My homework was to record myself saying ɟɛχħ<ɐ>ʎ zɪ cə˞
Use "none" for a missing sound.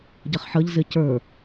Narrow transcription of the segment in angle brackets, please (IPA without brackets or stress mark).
ə